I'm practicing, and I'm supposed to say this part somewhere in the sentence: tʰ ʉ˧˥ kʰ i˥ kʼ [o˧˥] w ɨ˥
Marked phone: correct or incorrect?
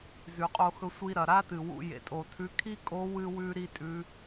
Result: correct